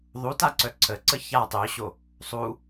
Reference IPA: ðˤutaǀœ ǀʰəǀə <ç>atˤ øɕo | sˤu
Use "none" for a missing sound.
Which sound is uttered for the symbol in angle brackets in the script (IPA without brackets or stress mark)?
ç